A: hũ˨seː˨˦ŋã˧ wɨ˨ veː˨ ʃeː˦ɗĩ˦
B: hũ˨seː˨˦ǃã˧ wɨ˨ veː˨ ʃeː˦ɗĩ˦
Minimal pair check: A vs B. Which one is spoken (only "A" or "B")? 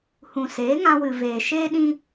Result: A